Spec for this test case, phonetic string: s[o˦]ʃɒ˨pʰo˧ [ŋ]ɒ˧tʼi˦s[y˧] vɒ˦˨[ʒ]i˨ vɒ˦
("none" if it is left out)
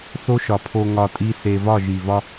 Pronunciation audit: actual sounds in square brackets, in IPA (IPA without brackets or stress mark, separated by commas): o˦, ŋ, e˧, ʒ